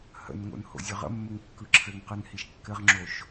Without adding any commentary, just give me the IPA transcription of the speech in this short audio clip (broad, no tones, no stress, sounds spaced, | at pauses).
h ə̰ n ŋ o̰ n h o̰ zʲ ø ʁ ə̰ mː ɘ ŋ kː ɯ ǁʰ ɘ ŋ q ɯ n h i ʃ kː ɘ ʁ ŋ͡ǁ o ʃ